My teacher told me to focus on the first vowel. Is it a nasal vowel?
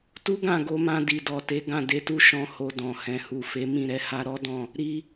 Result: no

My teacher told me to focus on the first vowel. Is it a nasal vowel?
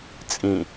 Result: yes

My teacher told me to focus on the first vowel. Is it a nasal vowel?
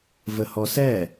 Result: no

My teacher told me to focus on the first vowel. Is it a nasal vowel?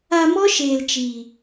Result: no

